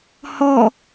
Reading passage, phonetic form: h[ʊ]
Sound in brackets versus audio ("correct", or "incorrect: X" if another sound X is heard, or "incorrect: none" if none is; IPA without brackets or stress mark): incorrect: ɔ